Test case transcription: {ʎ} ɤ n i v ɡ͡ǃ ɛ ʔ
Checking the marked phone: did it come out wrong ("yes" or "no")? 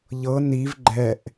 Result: no